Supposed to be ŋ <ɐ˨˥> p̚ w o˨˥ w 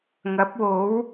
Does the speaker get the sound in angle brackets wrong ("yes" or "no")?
no